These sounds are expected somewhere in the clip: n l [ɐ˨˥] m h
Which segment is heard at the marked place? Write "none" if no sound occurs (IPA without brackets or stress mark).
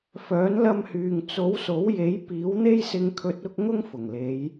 ɐ˧